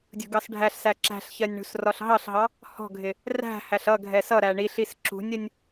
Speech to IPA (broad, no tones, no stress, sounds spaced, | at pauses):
dʲ ṳ ɡ ɑ s ɖʱ æ ɬ s æ ǁ æ̤ ɬ ç ɜ nʲ ɳ ṳ s r ɒ ɬ ɦ ɑ ɬ ɦ ɑ | h ɔ̤ ɡʱ ɪ | r æ̤ h æ ɬ ʌ ɡʱ ɛ s ʌ ɾ æ ɳ i ɬ i s ǁ ṳ nʲ ʌ nʲ